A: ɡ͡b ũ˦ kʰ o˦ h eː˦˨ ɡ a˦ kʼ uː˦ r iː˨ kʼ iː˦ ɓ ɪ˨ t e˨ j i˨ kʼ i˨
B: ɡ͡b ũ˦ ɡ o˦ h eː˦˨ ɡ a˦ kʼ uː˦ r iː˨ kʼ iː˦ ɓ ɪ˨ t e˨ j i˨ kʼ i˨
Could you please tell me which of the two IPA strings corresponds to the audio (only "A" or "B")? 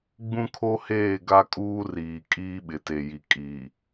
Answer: A